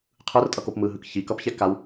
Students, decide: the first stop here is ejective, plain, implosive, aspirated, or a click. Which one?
aspirated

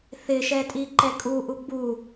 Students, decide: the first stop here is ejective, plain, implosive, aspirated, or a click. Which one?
ejective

